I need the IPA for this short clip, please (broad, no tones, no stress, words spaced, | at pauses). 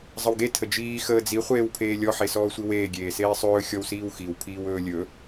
zˤəwɡe tʰəd͡ʒiː xəːd͡zi χʷeːwpʰeːlʲɔ ħesɔːsʷiweː ɡʲeːseːsˤɵː xʲɔwsiːwxiw pʰiːwɵːlʲɵ